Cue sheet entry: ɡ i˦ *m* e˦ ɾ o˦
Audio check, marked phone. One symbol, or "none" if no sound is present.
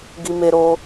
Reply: m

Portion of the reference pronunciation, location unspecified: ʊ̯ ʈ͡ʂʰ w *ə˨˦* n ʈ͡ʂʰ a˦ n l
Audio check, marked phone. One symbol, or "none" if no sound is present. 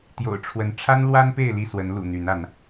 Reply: ə˨˦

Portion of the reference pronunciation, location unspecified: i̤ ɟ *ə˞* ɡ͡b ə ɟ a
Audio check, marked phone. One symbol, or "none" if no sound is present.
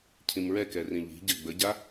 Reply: ɜ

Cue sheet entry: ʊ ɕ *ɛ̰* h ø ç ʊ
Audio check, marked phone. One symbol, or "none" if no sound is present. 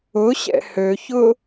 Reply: ɛ̰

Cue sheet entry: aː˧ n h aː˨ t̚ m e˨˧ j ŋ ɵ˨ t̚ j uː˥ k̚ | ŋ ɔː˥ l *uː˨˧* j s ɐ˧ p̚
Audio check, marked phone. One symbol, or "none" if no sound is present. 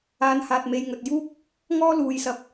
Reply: uː˨˧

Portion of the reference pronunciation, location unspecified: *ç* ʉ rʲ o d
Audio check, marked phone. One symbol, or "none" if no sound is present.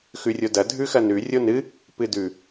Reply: x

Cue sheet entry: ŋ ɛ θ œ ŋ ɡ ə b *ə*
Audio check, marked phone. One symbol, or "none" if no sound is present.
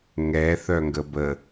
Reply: ə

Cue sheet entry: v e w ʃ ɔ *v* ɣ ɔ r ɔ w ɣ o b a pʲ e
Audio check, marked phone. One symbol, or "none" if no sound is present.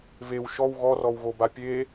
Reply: w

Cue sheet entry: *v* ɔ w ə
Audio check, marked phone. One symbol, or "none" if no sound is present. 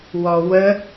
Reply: w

